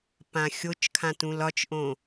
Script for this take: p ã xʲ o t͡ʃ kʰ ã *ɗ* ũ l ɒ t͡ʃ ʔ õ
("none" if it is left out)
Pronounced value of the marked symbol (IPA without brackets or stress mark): t